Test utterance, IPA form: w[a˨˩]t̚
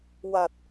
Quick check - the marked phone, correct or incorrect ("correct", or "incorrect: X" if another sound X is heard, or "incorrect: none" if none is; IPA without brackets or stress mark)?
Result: correct